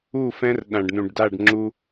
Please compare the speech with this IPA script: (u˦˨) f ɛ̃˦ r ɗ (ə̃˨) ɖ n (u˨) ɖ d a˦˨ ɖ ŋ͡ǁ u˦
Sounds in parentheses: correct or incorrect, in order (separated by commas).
correct, incorrect, incorrect